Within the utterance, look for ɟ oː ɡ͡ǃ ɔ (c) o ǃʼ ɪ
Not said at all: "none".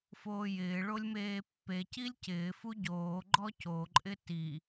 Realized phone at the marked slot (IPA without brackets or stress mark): c